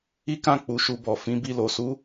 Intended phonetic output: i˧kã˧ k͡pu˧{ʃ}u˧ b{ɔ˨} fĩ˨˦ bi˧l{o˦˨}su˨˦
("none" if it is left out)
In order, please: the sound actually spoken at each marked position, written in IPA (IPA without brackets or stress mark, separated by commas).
ʃ, ɔ˨, o˨